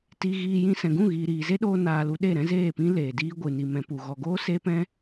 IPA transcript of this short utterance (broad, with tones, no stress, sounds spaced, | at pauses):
t i˧ ɣ iː˧ j ĩ˦ s ɛ̃˨ ɡ ũ˦˨ ɣ iː˨ ɾ iː˨ z e˦ ɗ oː˧ n aː˨ l u˧ ɗ e˦˨ ɾ ɛ̃˦ z eː˦˨ p ĩ˦ l eː˨ d iː˦ ɡʷ ɨ˨ n i˨ m ɛ̃˨ p u˨ ɣ ɔ˨ ɡ oː˦ s e˦ p ɛ̃˦